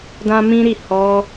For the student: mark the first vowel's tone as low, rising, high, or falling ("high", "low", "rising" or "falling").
high